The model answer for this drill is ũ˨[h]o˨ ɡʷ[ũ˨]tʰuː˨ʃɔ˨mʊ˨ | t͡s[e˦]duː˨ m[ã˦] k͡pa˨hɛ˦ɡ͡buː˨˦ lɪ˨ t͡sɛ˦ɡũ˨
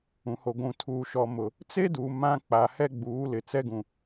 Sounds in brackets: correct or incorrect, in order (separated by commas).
correct, correct, correct, correct